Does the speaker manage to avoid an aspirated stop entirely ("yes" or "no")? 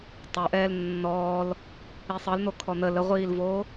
no